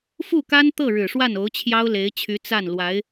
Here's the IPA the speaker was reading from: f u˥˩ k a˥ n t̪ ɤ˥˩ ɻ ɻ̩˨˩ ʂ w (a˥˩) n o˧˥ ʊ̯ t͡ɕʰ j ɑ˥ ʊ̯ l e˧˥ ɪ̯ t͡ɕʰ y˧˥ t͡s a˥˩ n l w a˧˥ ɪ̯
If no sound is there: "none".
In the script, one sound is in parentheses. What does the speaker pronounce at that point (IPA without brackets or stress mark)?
a˥˩